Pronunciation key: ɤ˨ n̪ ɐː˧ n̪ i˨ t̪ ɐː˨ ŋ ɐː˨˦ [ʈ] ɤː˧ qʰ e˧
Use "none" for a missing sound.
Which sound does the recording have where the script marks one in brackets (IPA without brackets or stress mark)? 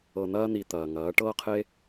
ʈ